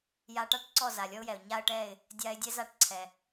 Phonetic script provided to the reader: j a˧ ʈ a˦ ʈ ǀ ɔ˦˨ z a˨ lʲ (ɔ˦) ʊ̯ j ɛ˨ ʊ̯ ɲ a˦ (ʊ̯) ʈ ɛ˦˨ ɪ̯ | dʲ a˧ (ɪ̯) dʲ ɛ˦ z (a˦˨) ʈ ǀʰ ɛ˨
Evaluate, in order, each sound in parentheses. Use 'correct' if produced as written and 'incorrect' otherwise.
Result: correct, incorrect, correct, correct

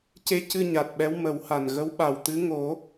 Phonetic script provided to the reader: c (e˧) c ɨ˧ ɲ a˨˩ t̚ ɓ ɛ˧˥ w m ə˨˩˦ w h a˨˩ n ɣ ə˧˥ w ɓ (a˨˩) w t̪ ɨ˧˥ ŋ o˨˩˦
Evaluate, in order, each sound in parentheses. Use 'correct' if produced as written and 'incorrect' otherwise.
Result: correct, correct

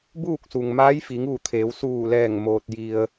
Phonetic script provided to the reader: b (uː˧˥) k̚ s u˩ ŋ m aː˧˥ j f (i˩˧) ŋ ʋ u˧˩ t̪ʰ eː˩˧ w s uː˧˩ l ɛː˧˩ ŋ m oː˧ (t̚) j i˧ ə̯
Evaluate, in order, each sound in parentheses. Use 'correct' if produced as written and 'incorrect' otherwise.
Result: incorrect, correct, correct

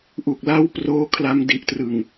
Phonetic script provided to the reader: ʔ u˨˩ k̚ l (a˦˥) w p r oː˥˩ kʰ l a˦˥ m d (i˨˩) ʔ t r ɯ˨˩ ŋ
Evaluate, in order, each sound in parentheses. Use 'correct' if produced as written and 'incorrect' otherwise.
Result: incorrect, correct

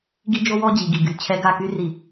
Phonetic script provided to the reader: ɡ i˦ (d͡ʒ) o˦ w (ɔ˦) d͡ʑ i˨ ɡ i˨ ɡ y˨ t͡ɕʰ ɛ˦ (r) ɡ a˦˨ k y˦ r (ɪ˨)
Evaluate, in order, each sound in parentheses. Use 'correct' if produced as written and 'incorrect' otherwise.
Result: correct, correct, incorrect, incorrect

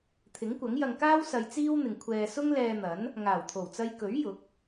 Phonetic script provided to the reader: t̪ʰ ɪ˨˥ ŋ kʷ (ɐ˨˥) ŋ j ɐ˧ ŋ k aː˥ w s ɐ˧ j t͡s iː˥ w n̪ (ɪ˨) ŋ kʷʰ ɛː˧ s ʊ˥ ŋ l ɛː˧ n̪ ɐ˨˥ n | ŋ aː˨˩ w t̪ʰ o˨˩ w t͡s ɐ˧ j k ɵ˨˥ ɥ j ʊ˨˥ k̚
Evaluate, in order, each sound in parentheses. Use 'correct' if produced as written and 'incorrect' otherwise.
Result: correct, correct

